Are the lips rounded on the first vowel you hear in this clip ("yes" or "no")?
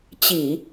no